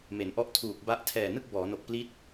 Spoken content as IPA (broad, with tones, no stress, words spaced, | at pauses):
me˩˦nʔɔ˥˩ʔtʰuː˨˩k̚ba˥˩ʔ tʰɛː˨˩nɯ˥˩k̚ bɔː˩˦no˨˩k̚pli˦˥t̚